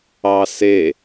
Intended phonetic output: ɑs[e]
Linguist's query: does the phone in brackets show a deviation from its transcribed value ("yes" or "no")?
no